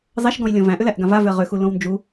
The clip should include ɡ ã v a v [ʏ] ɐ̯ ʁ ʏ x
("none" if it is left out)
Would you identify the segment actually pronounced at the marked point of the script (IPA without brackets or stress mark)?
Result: ʏ